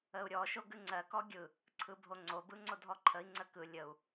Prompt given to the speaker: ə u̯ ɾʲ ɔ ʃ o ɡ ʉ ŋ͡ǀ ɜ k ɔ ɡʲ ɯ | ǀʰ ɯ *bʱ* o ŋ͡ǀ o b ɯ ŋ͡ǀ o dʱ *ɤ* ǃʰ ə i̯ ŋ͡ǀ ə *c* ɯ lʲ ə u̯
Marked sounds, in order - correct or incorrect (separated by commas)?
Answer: correct, incorrect, incorrect